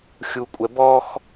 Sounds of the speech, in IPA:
xʲ u kʷʼ ɛ b ɔ x

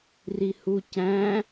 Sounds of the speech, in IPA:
r i h u c æ̃

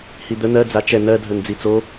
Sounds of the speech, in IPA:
h i d̪ ə n̪ ɜ d͡z a t͡ʃ ɛ n ɜ dʱ ə n d͡z i t͡s o

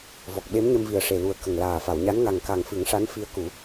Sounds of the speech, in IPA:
v ɔ˨˩ k̚ ɓ e˧˥ m ɲ ə˧ m v i˨˩ ə̯ ʂ e˨˩ l u˨˩ ə̯ k ə˨˩ ŋ l aː˨˩ f a˨˩˨ w ɲ a˧˥ n ŋ a˨˩ ŋ k a˨˩ ŋ f ɨ˨˩˦ ŋ ʂ a˧˥ n f i˧˥ ə̯ k u˨˩˦

